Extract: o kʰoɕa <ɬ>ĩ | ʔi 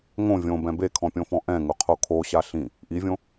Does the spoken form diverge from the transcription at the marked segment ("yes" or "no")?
no